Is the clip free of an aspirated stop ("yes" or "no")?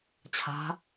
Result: no